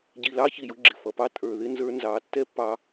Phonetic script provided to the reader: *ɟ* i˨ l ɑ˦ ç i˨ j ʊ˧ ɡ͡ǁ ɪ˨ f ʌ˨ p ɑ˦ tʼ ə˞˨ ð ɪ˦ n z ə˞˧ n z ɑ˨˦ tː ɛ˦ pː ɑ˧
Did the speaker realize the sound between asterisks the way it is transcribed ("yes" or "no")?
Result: yes